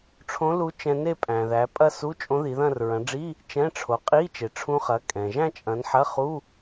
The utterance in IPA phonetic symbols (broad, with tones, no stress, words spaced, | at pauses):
ʈ͡ʂʰõ˧˥lu˧˥ t͡ʃɛ̃˧ ne˥˧pʼæ̃˩ðæ˩˧pʼɐ˥˧ su˧˥˧t͡ʃʼõ˧˥ði˩˧ðɐ̃˥˧r ɹɐ̃˩˧ɖ͡ʐi˧˥˧ | t͡ʃɛ̃˧˥˧ʈ͡ʂʰo˩˧ qʼi˧˥˧t͡ʃe˩ʈ͡ʂʰũ˧χɐ˩˧ kʼɛ̃˩ ʒæ̃˥˧t͡ʃʼɐ̃˩˧n ħɐ˧˥˧χu˧˥˧